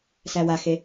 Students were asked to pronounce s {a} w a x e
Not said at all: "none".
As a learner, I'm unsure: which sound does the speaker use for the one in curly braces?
æ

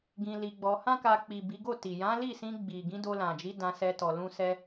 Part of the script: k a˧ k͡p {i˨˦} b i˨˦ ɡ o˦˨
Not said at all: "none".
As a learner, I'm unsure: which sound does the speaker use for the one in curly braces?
i˨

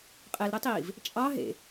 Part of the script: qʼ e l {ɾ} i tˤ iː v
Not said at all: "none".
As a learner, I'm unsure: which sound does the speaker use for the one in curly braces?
ɾ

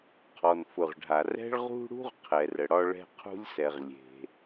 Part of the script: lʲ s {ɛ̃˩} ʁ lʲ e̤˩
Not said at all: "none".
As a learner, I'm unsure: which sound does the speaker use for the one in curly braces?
ɛ˩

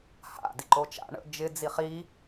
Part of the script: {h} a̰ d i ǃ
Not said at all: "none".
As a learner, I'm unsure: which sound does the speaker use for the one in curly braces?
h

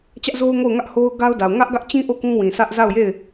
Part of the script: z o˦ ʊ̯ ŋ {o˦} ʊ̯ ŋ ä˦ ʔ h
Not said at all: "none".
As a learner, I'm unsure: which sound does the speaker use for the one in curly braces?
o˦˨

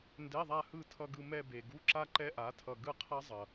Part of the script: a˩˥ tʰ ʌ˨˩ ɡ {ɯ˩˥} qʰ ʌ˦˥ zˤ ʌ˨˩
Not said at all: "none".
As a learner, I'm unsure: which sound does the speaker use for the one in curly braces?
ɯ˦˨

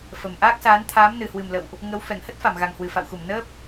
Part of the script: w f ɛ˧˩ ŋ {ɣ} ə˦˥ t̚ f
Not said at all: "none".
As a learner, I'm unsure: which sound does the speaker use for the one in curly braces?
h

